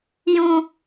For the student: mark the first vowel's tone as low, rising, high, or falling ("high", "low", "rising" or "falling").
high